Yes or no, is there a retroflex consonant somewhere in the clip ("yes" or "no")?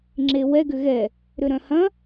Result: no